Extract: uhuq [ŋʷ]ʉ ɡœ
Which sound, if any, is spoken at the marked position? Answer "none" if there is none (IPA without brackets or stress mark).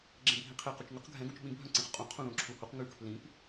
ŋ